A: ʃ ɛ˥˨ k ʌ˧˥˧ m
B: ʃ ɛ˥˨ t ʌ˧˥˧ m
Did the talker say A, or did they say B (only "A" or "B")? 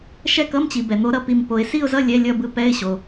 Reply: A